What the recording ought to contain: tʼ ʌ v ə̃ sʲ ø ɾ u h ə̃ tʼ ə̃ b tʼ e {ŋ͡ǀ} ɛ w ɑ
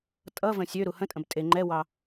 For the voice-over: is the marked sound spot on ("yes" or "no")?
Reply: no